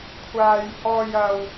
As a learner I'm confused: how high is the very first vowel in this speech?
low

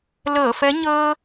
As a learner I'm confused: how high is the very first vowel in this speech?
mid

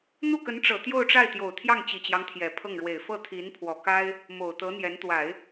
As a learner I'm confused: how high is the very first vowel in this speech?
high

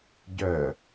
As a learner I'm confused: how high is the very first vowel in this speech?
mid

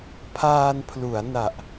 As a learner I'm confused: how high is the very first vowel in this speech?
low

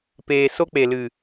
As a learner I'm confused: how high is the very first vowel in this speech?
mid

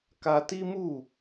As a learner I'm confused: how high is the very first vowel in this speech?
low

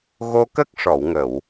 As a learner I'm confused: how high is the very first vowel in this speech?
mid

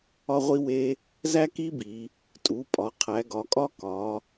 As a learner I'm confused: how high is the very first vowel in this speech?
low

